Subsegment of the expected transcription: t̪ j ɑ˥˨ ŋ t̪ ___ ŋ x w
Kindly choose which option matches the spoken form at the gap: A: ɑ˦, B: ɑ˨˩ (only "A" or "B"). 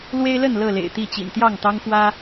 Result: A